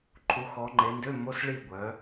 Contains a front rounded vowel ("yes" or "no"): yes